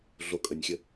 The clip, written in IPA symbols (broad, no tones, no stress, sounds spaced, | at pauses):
ɮ o kʼ ə nʲ xʲ ə